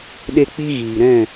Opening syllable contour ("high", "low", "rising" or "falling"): high